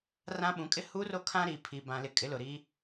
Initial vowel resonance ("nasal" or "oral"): nasal